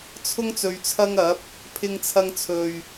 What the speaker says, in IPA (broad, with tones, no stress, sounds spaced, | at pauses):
t͡sʰ ʊ˥ ŋ t͡s ɵ˧ ɥ t͡sʰ ɐ˥ ŋ ɐ˨˥ p̚ | pʰ ɪ˧ ŋ t͡sʰ ɐ˧ ŋ t͡sʰ ɵ˨ ɥ